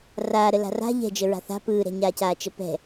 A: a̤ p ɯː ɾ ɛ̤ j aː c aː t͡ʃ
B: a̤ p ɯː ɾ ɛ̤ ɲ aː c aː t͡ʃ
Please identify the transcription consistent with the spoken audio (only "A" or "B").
B